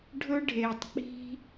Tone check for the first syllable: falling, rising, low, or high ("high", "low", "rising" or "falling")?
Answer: high